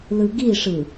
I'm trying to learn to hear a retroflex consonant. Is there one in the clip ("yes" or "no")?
yes